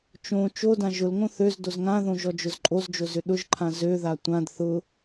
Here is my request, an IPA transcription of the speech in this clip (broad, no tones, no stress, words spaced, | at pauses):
t͡ʃõ t͡ʃodã ʒʊlŋõ θøz dozŋãðõ ʒɔd͡ʒʊzǃʼozd͡ʒo zʏɗʊʒǃʰã zøða tʷãd θʊ